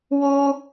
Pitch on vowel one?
high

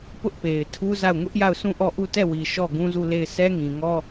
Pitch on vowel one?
high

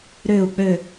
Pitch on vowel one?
falling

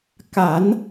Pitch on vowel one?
low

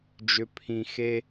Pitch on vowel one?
low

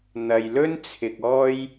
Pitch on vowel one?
low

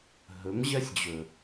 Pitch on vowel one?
rising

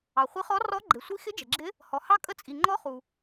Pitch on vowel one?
low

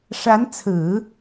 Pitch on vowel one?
rising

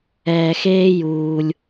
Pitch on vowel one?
low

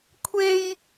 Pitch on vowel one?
high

